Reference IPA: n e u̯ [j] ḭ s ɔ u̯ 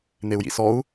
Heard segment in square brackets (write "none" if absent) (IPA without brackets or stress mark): j